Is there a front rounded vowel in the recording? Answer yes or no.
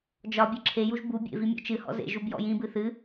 no